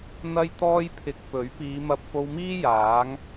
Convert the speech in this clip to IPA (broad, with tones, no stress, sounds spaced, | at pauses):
n̪ ɐ˥ j t̪ ɔː˥ j pʰ ɪ˧ k̚ p ɵ˨˥ ɥ p iː˨˧ m ɐ˧ p̚ f o˧ w m iː˥ j aː˨˥ ŋ